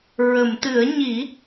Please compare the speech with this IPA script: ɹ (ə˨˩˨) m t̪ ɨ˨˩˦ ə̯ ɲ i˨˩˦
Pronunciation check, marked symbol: correct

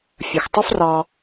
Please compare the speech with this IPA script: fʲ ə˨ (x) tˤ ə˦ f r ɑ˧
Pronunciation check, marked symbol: correct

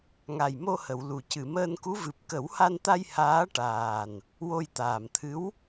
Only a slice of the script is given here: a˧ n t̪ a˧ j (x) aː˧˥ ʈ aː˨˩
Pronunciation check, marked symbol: incorrect: h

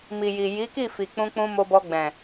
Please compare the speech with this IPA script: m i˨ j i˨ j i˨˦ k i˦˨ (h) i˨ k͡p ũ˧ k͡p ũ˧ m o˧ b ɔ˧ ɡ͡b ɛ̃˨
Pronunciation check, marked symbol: incorrect: f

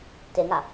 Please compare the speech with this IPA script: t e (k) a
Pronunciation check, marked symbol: incorrect: ŋ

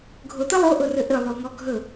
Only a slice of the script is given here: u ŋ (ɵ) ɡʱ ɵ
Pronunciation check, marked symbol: incorrect: ɔ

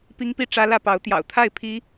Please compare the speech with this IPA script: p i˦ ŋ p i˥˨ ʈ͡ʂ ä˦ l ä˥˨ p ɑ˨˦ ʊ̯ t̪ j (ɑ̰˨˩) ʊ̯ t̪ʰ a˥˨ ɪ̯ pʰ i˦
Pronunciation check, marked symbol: correct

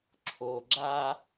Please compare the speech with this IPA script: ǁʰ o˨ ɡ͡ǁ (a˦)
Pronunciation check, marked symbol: correct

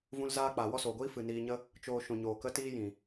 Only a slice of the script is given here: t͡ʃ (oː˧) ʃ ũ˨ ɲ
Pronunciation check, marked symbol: correct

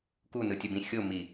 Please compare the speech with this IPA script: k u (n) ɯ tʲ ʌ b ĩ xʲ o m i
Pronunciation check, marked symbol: correct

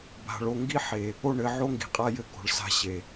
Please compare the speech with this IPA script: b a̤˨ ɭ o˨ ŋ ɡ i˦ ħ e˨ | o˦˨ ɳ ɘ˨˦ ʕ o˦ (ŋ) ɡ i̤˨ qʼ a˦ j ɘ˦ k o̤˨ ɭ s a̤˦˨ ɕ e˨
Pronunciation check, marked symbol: correct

